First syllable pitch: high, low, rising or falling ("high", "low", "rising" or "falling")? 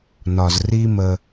low